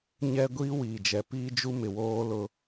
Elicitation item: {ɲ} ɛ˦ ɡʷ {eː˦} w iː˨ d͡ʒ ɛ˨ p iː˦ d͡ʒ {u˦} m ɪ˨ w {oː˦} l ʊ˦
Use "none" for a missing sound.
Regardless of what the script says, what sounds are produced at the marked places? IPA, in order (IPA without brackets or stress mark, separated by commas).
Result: ɲ, iː˦, u˦, oː˦